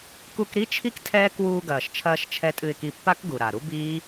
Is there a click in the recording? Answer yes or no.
no